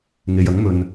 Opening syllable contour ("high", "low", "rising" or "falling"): low